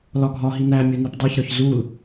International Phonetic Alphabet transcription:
l ɒ ɡʱ ɒ ɦ i n æ mʲ o n i p dˤ e ç ɾ ɒ ç z u l

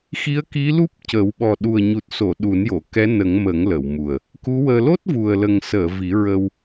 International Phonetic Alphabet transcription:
x i˧˥ ə̯ k i˧˥ l u˦˥ p̚ c ə˨˩˦ w ɓ ɔ˨˩ ɗ u˨˩ ə̯ ɲ u˨˩ t̚ s o˨˩˨ ɗ u˨˩˦ n j o˨˩˨ k ɛ˧˥ n ə˨˩˦ ŋ m ə˨˩˦ ŋ l ə˨˩˨ w m u˨˩ ə̯ | k u˧˥ w əː˧ l o˦˥ t̚ v u˨˩ ə̯ l ə˨˩ ŋ s əː˨˩˨ v i˨˩˦ ɹ ə˧ w

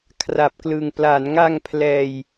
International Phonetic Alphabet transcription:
kʰ r a˨˩ p̚ k l ɯ˨˩ ŋ p l a˩˦ n ŋ a˧ ŋ pʰ l ɛː˧ j

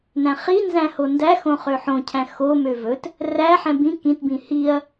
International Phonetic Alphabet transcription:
n æ̃ χ i n z æ̃ h o n d æ x õ χ ø ħ õ cʰ æ̃ x o m ø v ɵ t | r æ ħ ɛ̃ b ĩ k ĩ t b ĩ h i ɐ̯

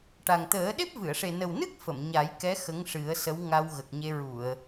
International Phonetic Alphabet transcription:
ʈ a˨˩ ŋ t̪ əː˨˩˦ ɗ e˦˥ p̚ v ɨ˨˩˨ ə̯ ʂ e˨˩ n ə˨˩ w n ɨ˦˥ k̚ f ə˨˩˨ m ɲ a˨˩˦ j k ɛ˧˥ x ə˧˥ ŋ ʂ ɨ˨˩˦ ə̯ s ə˧˥ w ŋ a˧ w ɣ ə˨˩ k̚ ɲ e˧ ɹ u˨˩˨ ə̯

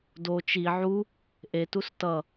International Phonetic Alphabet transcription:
d o t͡ʃ i ʕ u | ʔ e t u s t ʌ

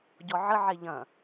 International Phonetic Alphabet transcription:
ɟ ɔ ʕ ə ʕ e ʎ ɐ̃

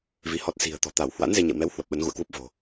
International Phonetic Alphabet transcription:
v i˨˦ h ɔ˦˥ t̚ s i̤˨˩ ə̯ t̪ ɔ̤˨˩ t̪ a˧˩ w h w a̰˧˥ n z e˧ ɲ ɛ̰˧˨ w m ɛ˨˦ w h w ə˨˩ p̚ ɓ ə˨˦ n ɣ ṵ˧˨ ə̯ k w u˦˥ p̚ v o̤˨˩

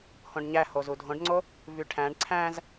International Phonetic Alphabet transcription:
h õ ɖ ɲ æ h o z u dʱ õ ɖ ŋ͡ǀ o | v y ʈʰ æ̃ ɖ ǀʰ æ̃ z

